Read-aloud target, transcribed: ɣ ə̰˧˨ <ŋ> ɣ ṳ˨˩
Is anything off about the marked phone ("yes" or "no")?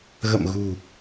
yes